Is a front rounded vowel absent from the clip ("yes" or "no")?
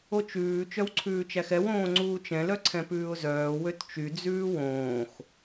no